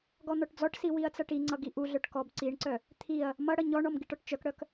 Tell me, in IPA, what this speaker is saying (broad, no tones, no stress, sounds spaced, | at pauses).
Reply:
ɡ ɔ n̪ ɔ ʈ d͡z ɔ ʈ s i w i ɐ̯ t͡s ʌ ʈ i ŋ͡ǀ ʌ ɡ i ʔ u ɮ œ ʈ k ɔ b ǀ i ɳ ǀ œ | t̪ʰ i ɐ̯ | m ʌ ɽ ʌ ɲ ɔ ɳ ɔ m ɡ i ʈ ɔ ʈ t͡ʃ œ k ɽ œ k